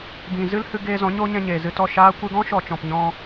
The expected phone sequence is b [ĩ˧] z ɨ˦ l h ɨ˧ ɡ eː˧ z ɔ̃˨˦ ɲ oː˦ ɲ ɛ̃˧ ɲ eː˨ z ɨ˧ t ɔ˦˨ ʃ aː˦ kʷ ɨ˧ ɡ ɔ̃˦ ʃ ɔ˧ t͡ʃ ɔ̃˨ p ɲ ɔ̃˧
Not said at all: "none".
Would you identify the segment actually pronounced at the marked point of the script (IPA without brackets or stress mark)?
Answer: ĩ˨